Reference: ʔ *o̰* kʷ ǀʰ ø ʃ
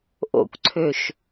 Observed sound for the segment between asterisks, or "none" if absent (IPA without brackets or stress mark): o̰